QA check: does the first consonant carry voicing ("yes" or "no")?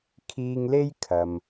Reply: no